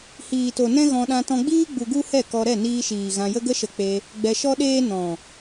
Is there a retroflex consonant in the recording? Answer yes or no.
no